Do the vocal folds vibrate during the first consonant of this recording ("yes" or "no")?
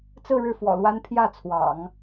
no